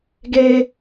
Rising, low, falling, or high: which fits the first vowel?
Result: high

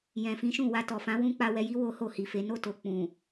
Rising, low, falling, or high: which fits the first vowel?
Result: low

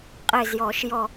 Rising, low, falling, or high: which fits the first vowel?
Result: falling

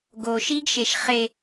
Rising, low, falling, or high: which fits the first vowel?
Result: low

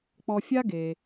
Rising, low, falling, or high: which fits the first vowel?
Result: low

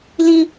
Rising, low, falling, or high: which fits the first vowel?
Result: high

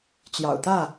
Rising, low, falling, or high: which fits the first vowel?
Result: low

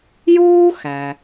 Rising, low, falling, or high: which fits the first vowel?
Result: high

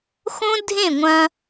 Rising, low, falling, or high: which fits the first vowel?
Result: high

